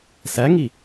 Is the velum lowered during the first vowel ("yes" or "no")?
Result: no